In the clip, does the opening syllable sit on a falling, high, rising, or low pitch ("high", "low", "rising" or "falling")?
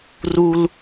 low